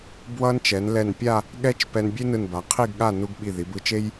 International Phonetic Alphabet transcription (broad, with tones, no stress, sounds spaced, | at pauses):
b w ʌ˥ n t͡ʃ ɛ˩˧ n l ɛ˧˩ n pʲ a˥˧ | ɠ ɛ˥ t͡ʃ p ɛ˧ n bʲ e˥ n ɯ˧˩ n b a˩˧ qʰ i˥˧ ɡ ɠ a˥˧ n u˥ ɡ ɓ i˧˩ ð i˩˧ b ɯ˧ t͡ʃ e˥ j